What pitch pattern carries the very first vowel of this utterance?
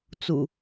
low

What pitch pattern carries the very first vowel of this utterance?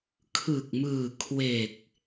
low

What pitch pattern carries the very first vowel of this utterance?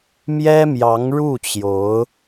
high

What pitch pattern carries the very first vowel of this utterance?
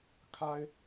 high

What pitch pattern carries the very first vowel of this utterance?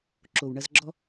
low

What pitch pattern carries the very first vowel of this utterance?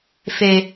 low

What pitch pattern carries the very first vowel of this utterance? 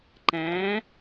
rising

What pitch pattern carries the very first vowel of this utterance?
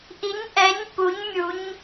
rising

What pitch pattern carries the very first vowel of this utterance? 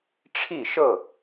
falling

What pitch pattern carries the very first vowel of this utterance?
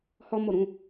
high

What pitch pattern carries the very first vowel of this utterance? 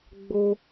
high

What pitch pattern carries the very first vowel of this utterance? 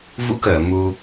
rising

